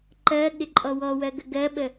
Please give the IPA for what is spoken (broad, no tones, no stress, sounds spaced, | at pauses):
ǃ ɜ ɠ ɪ ǃʼ ɔ w ɔ w ɜ ɡ ə ɡ ɜ ɓ ə